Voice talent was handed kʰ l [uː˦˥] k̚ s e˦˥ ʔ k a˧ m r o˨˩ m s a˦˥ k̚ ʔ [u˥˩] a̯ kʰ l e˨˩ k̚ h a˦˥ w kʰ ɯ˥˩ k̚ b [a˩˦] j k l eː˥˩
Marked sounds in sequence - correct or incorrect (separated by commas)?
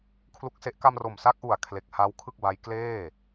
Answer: incorrect, incorrect, incorrect